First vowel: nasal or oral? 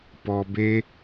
oral